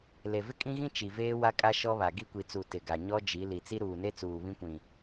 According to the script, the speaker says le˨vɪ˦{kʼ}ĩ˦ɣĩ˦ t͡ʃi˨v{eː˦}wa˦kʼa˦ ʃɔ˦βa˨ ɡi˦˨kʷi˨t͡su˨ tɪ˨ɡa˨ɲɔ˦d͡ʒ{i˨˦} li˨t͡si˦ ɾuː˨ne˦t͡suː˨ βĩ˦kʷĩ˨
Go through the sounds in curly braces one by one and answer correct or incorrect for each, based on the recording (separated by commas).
correct, correct, correct